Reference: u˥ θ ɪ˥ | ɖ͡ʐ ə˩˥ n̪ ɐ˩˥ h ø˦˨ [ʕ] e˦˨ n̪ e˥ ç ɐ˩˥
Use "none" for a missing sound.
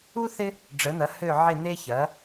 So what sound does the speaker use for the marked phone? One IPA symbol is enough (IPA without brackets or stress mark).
ʕ